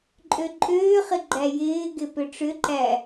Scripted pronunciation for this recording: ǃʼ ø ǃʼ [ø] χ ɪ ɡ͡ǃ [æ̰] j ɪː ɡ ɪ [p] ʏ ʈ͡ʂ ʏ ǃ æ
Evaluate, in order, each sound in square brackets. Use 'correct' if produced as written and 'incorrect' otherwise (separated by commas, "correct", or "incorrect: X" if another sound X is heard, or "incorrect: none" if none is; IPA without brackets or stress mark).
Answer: incorrect: øː, incorrect: æ, correct